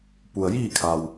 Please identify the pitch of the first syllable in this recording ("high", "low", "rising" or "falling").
low